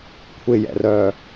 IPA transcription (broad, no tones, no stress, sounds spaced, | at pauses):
kʷʰ ɪ j ɛ̰ r œː